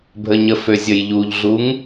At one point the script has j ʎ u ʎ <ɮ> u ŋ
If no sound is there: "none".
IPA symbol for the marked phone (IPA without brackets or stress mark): ɮ